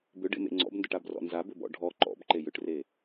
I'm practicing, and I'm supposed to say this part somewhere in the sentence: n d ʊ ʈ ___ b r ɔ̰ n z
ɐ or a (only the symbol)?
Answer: a